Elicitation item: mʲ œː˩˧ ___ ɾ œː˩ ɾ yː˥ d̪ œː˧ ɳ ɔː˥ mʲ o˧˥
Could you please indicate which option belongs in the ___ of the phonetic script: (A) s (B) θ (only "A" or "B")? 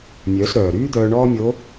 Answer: A